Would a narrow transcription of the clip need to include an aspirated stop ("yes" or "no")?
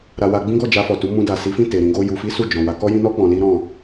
no